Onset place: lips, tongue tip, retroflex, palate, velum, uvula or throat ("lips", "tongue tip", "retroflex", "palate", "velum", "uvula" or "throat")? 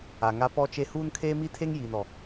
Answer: velum